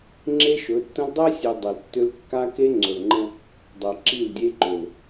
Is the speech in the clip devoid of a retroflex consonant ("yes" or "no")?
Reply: yes